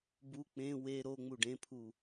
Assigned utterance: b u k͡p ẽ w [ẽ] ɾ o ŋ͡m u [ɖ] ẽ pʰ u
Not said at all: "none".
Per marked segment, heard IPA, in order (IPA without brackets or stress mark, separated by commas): e, ɖ